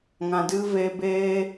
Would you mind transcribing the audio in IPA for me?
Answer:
ŋã˧dɨ˦ ve˧beː˦

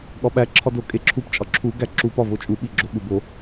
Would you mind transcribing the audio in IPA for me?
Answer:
ɠɒɓæ ǁʰɒdokʼeǁʰup t͡ʃʼɒǁʰu ɡæǁu pɒvot͡ʃʼu ɓiɡ͡ǁoɠubo

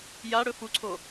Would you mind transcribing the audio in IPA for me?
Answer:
jaɽɵ fuǀʰo

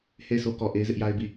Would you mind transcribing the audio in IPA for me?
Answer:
he˦˨ɪ̯sʰo˦kɔ˨ ʔe˦ɪ̯zɪ˦ʔja˦ɪ̯bi˦˨

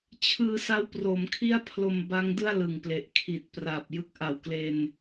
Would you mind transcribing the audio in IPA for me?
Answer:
t͡ɕʰɯː˧ sa˦˥wproː˩˦mkʰi˥˩a̯pʰlo˧m ba˦˥ŋdɯ˥˩a̯ lɯ˨˩ŋple˨˩ʔ kʰi˨˩t̚pra˨˩p̚ jɯ˦˥k̚ʔa˨˩wkle˧n

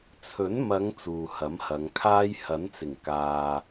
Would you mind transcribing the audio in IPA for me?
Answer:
t͡sʰɵ˨˥n mɐ˨˧ŋ t͡suː˨hɐ˨˥mhɐ˨˧ŋkʰaː˥j hɐ˨˥nt͡sɪ˨˩ŋ kaː˨

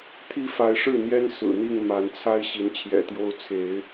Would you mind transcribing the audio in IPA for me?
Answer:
t̪ʰi˦fa˨˦ɪ̯ʂɻ̩˥˨n̪jɛ˦n sɹ̩˨˩n̪i˥˨ŋ ma˨˦n t͡sʰa˦ɪ̯ ɕi˨˦nt͡ɕʰjɛ̰˨˩t̪jo˦ʊ̯ t͡sʰe˨˦ɪ̯

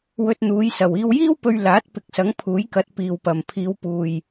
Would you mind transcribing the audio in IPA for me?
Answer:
wɵ˧t̚n̪uː˨˧jsɐ˨w iː˧wjiː˥wpɵ˧ɥ laː˨˥t̚pɪ˨˥k̚sɐ˨˥ŋ pʰuː˨˥jkɐ˨˥t̚ piː˨wpɐ˨m pʰiː˨˧wpuː˨j

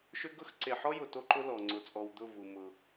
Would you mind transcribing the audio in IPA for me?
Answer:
ʃʏ˦ɡʊ˦x ǀe˨ħɔ˦jʊ˨ to˦ǃʊ˦lɔ˨ ŋ͡ǀʊ˨t͡sʼɔ˨w d̪ʊ˦˨vu˨ mʊ˦

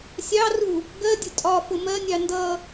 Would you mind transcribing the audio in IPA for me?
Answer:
sʲɑru | ɡɜdʲʊ tʼɒ fʊmɜnʲɑ ndʌ

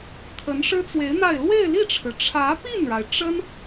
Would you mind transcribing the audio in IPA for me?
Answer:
t̪ʰə˧˥n ʂɻ̩˥t͡swe˧˥ɪ̯n̪a˥˧ɪ̯ lwe˥˧ɪ̯li˥˩ʈ͡ʂʰɻ̩˩ ʈ͡ʂʰä˧˥pi˥˩nɻa˩ɪ̯ ʈ͡ʂə˥n

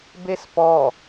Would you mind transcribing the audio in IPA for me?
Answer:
bespɔ

